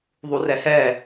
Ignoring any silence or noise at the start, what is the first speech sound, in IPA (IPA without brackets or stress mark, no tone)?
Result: ðˤ